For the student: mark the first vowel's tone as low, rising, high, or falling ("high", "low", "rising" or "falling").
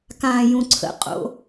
low